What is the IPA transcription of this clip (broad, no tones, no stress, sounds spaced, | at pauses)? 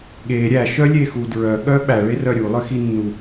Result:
ɠ e ɾʲ æ ʃ œ lʲ e x u d ɹ œ ɠ œ ɓ æ ɭ e r œ ɾʲ u lˠ ø x i nː u